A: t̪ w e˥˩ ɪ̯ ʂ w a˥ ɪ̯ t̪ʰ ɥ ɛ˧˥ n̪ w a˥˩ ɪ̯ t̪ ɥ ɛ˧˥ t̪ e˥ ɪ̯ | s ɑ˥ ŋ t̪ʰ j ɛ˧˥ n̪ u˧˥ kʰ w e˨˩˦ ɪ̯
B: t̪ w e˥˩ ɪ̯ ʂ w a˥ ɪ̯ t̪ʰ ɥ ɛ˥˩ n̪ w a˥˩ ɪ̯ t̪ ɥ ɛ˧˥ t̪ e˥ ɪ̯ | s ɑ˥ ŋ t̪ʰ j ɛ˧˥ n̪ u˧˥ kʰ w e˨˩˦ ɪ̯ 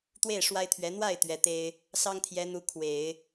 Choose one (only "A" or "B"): A